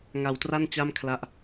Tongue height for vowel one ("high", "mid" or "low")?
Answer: low